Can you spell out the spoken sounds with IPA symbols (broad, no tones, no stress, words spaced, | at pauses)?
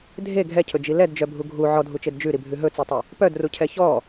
dʱe ɡʱɛcʰɵd͡ʒi lɛdd͡ʒœbʱu ɡʱu ʕɔdʱut͡ʃed d͡ʒʉɾibʱʉ ɦɵt͡sitˤe | pœdrucʰɛ çɔ